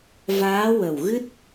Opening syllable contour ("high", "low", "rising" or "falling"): rising